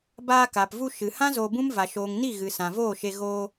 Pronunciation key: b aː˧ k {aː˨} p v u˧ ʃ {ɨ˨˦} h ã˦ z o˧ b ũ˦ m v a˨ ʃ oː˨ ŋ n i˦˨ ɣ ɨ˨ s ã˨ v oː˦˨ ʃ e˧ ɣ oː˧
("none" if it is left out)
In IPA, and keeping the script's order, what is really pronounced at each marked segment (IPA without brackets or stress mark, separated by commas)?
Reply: aː˨, ɨ˨